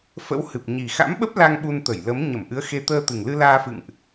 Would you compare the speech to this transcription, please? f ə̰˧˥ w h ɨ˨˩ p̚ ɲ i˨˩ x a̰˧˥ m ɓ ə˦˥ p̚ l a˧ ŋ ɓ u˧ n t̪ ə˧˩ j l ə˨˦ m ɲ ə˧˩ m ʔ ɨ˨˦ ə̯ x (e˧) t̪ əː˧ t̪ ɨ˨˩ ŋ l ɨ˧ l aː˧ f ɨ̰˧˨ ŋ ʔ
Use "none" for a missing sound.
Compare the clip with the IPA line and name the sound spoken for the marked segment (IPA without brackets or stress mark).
e˧